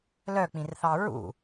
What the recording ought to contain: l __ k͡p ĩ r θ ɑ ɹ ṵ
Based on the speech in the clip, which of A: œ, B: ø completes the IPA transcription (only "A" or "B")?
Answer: A